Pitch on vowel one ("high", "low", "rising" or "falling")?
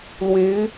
rising